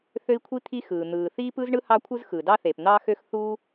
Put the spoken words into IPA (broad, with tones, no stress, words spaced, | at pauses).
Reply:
θø˥i̯kʷʰi˥t̪ʰi˥xɯː˩ n̪ɯː˩θiː˥pɯ˥zɳɯ˥ hɑ˥kʷʰɯ˥zxɯ˩ dɑ˥θe˩p n̪ɑː˥xø˥x θu˥